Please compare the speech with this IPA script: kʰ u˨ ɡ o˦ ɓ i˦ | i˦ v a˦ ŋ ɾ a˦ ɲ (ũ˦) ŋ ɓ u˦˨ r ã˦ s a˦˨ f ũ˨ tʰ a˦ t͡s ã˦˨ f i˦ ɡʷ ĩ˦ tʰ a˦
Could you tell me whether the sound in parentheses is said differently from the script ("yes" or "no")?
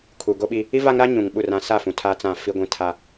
yes